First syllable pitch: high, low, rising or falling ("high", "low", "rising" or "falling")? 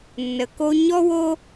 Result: low